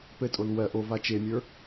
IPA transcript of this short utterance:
p ɘ tʼ o l w ɜ ʔ o v a t͡ʃ e mʲ ə˞

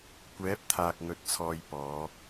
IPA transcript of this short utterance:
kʷ ɛː˨˥ p̚ t̪ʰ aː˨ k̚ ŋ ɵ˨ t̚ t͡sʰ ɔː˨ j p ɔː˨˧

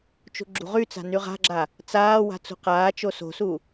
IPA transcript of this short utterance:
t͡ʃ ṳ ɡ͡ǁ ṳ ʁ y t͡s a̤ n y ʁ a̤ ɡ͡ǁ a | t͡s aː w a̤ t͡s ṳ q aː t͡ʃ o s o̤ s u

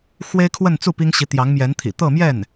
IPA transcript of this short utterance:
x w e˥ ɪ̯ kʰ w ə˥˧ n t͡s u˥˩ p i˥ ŋ ɕ i˧˥ t̪ j ɑ˧˥ ŋ m j ɛ˧˥ n t̪ʰ ḭ˨˩ t̪ ɤ˥˧ m j ɛ˥˩ n

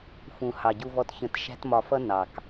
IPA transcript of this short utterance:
f ũ˩ h ɑ˩ ɟ u˨ v ɔ˨ t ç ə̃˨ t ʃ æ̤˦ t m ɒ˨ f ʌ˥ n ɑ˩ k

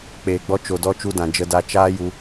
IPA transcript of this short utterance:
k͡p eː˨ ɡ͡b ɔ˧ t͡ʃ o˨ d ɔ˧ t͡ʃ u˧ d ã˨ d͡ʒ ə˧ d a˧ t͡ʃ aː˦ j u˧

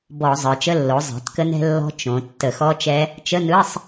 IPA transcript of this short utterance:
b ɔ˧˩˧ zˤ ə˞˩˧ t͡ʃ ə˧˥˧ lː o˩˥ zˤ ɛ̤˩˥ t k ə˦˥ n ɛ̤˦˥ lː ɔ̤˦˥ t͡ʃ õ˩˧ tː ə˧˩˧ x ɔ˦˥ t͡ʃ ɛ˦˥ | t͡ʃ ə˧˥˧ n ɯ˧˥˧ sˤ

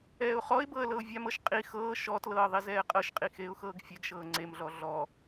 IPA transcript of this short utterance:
ɛː ʊ̯ χ ɔ ɪ̯ b ɤ ə̯ l ɤ ʊ̯ vʲ a m ɤ ʃ qʼ i x ɤː ʃ ɔ t l ɤː ðˤ i z ɛː qʼ ɤ ʃ qʼ i x eː ʊ̯ x ɤː ɡ fʲ ɛ ɡ ʃ ɤː ŋ͡ǀ e m ɮ ɔ ɮ ɔ

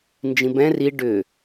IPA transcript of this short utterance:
n d͡ʒ ĩ b ɛ̃ r i ɖ ʏ

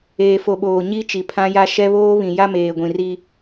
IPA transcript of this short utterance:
eː˨ f o˨ ɓ oː˨ ɲ i˦ t͡ʃ i˨ pʰ ã˦ j a˦ ʃ ɛ˦ β oː˦ β ĩ˨ j a˦ m eː˨ ɡʷ ĩ˨ r i˦

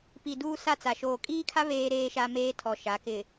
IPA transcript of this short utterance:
p i˨ d uː˦ s a˦ t͡s a˨ ʃ oː˨ kʼ iː˦ kʰ a˦ β eː˦ ɾ eː˦ ʃ a˦ m eː˦ tʰ ɔ˨ ʃ a˨˦ k ɪ˨

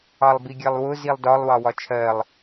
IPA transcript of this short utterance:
ɑ lˠ b i ɡʲ ɜ lˠ w ʊ z i lˠ d ɒ lˠ w ɑ w ɒ t͡ʃʰ ɜ lˠ

